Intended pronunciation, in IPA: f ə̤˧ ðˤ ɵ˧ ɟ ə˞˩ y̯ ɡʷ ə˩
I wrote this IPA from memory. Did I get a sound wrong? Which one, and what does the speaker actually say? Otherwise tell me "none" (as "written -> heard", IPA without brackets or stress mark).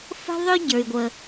none